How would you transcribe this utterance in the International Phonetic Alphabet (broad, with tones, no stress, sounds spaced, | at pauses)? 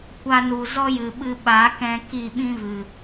kʷ a˧ n u˨ z ɔ˦ j ɨ˨ ɓ ɨ˧ ɓ a˨˦ k ɛ̃˧ k i˦˨ ɓ ĩ˦ v ɨ˨